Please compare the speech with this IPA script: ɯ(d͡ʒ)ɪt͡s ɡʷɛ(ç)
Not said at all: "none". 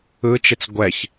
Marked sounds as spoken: t͡ʃ, ç

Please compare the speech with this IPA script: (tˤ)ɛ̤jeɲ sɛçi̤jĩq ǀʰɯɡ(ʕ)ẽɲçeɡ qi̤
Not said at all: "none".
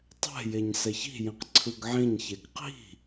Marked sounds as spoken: tˤ, ʕ

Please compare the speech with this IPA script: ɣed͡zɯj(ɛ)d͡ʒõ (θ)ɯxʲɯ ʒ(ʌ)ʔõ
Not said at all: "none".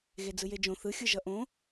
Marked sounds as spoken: e, θ, ʌ

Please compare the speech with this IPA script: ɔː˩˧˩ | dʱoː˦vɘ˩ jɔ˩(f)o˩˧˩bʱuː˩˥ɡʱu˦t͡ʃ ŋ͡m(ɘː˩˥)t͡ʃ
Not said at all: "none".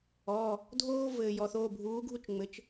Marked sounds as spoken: θ, ɘ˩˥

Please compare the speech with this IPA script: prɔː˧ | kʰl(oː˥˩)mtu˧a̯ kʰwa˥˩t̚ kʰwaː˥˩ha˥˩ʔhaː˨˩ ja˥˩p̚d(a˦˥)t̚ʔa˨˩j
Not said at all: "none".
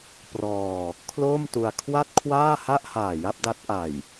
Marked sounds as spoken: oː˥˩, a˦˥

